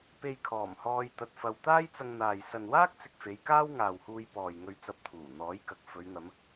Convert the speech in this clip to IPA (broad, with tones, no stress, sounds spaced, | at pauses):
p e˧ j kʰ ɔː˨˩ m h ɔː˧ j t̪ ɐ˧ t̚ f ɐ˧ w t̪ aː˥ j t͡s ɐ˧ ŋ n̪ aː˨ j s ɐ˨ n w aː˥ k̚ t͡s ɪ˨ k̚ f e˨˧ j k aː˥ w ŋ aː˨ w h uː˧ j p ɔː˨ j ŋ ɵ˧ ɥ t͡s ɐ˧ p̚ t̪ʰ uː˨˩ n̪ ɔː˨˥ j k ɐ˨ k̚ f ɵ˨˧ ɥ n̪ ɐ˨˧ m